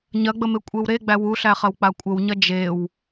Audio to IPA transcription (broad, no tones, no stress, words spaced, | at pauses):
ɲɐɡ͡bəme kʷʼewɾe ɡ͡bæwuɬæχɐw k͡pakʷʼəwɲɐ d͡ʒew